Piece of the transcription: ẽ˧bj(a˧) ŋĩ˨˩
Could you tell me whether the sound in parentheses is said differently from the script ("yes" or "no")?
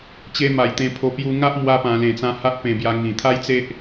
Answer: no